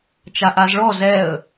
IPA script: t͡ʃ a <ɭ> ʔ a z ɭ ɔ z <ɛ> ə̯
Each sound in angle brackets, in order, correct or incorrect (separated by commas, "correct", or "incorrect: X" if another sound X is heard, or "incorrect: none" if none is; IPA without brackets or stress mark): incorrect: none, correct